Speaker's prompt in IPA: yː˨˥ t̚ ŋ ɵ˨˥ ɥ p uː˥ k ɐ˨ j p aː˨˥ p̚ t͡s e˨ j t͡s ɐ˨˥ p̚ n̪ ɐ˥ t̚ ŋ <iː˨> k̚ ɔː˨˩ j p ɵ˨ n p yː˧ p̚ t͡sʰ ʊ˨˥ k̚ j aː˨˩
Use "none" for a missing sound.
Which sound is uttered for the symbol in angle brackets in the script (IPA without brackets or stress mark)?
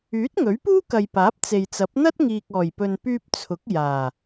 iː˨